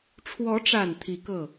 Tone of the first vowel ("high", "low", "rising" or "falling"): rising